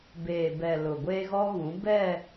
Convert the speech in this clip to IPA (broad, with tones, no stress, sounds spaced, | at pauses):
b eː˨ b ɛ˨ l ʊ˨ ɡʷ e˦ ɣ ɔ˦ ɣ ũ˨˦ b ɛ˦˨